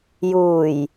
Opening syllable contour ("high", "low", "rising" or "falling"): low